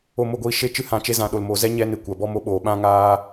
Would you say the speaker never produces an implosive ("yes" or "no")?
no